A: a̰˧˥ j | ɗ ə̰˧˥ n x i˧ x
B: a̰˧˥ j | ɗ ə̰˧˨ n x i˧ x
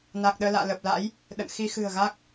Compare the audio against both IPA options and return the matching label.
B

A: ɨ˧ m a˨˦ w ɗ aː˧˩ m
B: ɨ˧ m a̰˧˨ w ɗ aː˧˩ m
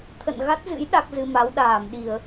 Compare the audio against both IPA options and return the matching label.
A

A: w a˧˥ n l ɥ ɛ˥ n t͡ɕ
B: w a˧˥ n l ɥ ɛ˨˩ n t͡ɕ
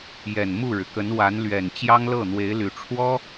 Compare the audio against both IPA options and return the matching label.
B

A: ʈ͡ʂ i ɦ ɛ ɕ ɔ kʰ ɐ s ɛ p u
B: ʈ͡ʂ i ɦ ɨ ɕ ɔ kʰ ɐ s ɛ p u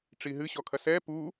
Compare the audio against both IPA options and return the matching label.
B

